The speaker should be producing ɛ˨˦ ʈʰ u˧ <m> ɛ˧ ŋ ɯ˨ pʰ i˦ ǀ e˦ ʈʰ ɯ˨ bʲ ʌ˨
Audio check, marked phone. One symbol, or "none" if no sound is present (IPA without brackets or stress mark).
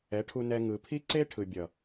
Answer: n